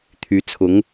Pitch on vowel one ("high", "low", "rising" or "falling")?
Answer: rising